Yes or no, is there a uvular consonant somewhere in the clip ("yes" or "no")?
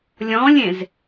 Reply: no